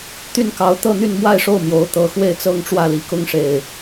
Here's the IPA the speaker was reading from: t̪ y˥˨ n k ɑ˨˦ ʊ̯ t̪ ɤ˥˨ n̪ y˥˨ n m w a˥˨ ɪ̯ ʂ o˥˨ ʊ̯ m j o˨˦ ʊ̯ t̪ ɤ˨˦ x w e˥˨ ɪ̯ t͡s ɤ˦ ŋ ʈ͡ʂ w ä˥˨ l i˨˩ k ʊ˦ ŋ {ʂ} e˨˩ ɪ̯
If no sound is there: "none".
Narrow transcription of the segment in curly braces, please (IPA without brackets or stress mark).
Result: ʂ